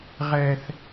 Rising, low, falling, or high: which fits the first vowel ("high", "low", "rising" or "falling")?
high